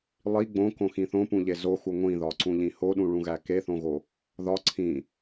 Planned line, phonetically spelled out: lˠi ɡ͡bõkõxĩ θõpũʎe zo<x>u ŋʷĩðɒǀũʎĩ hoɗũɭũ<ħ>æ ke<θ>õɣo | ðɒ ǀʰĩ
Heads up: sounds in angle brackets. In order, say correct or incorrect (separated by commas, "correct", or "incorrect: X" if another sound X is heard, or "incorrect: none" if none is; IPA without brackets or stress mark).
correct, incorrect: ɣ, correct